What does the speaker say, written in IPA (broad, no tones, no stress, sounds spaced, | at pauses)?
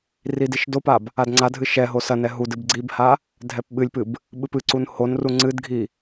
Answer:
r i d i ʃ d o p a b | a d ŋ͡ǀ a dʱ ɨ ʃ ɛ ɦ o s ɐ n ɛ ɦ u d ɨ b ɡ͡ǀ i b h a | dʱ ɛ p ɓ ɨ lʲ p ɨ b | ɓ ɨ p ɨ ǀ u n h o n r u ŋ͡ǀ ɨ d ɡʱ i